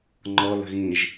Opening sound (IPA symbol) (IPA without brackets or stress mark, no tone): ŋ͡ǃ